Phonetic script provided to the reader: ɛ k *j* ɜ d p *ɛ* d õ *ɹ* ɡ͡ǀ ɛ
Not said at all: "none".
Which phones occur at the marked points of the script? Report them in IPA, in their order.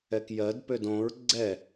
j, ø, ɹ

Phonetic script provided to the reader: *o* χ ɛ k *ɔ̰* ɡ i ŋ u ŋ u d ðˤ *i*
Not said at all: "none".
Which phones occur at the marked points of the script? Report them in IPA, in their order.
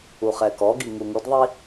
u, ɔ, i

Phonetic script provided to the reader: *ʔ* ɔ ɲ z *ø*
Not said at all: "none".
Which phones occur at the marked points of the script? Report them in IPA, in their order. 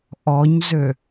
ʔ, ø

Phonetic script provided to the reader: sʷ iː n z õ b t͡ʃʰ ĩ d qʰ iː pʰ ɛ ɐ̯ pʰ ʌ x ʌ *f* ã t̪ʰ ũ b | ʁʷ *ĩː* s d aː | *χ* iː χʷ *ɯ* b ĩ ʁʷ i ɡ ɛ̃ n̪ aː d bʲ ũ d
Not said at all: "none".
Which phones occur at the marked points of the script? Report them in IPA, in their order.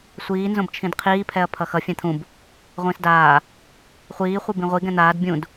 fʲ, ĩː, χʷ, ɯ

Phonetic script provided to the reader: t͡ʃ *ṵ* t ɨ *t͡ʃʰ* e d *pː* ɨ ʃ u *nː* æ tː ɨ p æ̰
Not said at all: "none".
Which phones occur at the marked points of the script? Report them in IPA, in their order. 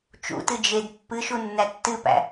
ṵ, d͡ʒ, pː, nː

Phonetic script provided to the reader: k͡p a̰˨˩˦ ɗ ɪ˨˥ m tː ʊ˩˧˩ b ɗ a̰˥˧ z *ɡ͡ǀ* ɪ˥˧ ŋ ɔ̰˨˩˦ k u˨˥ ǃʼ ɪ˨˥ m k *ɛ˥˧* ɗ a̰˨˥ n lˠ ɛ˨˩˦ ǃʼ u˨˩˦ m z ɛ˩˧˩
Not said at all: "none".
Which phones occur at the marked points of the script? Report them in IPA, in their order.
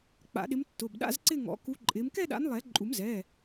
ǀ, ɛ˥˧

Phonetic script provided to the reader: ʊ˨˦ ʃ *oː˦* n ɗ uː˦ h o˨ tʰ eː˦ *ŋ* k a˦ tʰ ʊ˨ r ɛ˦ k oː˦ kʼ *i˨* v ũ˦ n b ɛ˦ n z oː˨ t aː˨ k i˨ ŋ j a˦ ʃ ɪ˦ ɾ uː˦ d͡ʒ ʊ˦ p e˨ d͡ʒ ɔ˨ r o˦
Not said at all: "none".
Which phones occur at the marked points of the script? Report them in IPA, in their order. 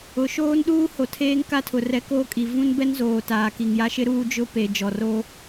oː˦, ŋ, i˨

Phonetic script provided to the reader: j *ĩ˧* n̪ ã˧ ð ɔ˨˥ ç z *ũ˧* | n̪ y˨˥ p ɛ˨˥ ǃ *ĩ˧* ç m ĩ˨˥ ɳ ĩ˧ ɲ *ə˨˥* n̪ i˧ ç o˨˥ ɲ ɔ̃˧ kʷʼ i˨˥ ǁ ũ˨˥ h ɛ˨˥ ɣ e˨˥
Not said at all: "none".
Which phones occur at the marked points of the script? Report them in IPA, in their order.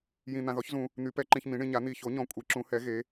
ĩ˧, ũ˧, ĩ˧, a˨˥

